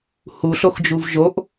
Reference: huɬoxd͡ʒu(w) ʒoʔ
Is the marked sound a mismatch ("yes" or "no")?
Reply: yes